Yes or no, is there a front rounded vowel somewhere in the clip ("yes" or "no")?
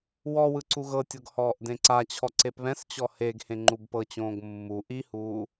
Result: no